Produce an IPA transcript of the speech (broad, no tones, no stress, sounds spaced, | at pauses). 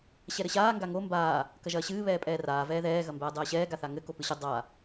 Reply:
ɕ ɛ ɾ ɘ ɕ aː ŋ ɡ a ŋ o m b aː | k ɐ ʒ ɐː ɕ ɨː β ɛː pʼ ɛː r aː v ɛː ð ɛː ɣ ɐ m b ɛː dˤ ɛː ɕ ɛː ɡ a θ a ŋ ɘ k o p ɨ ɕ ɘ dˤ a